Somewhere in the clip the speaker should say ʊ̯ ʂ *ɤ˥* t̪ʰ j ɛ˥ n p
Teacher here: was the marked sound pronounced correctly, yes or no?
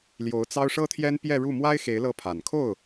yes